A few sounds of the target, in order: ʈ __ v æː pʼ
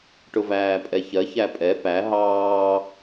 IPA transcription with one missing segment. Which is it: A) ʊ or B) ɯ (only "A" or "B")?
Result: A